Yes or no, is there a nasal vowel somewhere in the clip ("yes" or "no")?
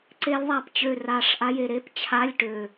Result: no